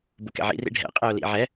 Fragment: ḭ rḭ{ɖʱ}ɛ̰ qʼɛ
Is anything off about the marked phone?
no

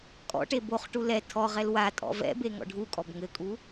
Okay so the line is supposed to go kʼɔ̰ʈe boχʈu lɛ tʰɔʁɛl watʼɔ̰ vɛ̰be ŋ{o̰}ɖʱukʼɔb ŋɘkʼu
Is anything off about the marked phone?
yes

